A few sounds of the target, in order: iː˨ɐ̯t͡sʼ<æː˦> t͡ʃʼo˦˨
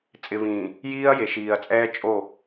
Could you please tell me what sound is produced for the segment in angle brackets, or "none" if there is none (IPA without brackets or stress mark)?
ɛː˦